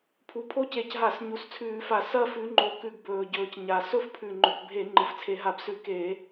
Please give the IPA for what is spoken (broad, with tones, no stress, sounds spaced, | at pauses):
pʰ u˨˩ pʰ o˥˧ c e˧˩˧ c ɦ a˧˩˧ s ɲ u˨˩ s t͡sʰ ʉː˧˩˧ f a˧˩˧ s ɐ˥˧ f ʉ˨˦ ŋ͡ǃ o˨˦ k ʉ˧˩˧ ɡ b ɵː˨˩ ɟ ɵː˨˩ c ɲ a˨˩ s ɵ˥˧ f pʰ ʉ˨˩ ŋ͡ǃ ɵ˨˩ k bʱ e˧˩˧ ŋ͡ǃ ɨ˨˩ f t͡sʰ e˧˩˧ ɦ a˧˩˧ b s ʉ˧˩˧ k e˧˩˧